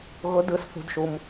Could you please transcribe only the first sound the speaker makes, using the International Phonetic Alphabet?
ɣ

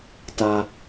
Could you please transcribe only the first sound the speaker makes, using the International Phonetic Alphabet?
t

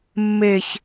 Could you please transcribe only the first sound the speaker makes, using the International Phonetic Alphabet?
mː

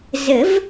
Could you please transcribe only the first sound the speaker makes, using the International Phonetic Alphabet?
z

